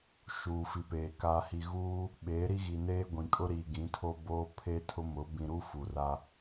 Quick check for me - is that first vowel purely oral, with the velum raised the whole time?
yes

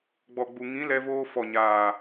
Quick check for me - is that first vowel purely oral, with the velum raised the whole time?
yes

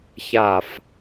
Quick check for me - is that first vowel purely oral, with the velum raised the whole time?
yes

